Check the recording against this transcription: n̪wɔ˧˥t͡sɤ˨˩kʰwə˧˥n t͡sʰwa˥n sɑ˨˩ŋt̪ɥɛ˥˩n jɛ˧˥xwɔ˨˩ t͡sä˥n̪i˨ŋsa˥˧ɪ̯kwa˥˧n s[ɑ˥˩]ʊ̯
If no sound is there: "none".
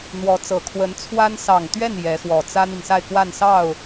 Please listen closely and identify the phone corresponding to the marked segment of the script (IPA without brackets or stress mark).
ɑ˥˩